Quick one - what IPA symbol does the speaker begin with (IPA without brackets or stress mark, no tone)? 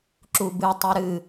ǁ